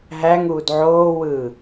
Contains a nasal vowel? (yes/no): no